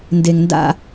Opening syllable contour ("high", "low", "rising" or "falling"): low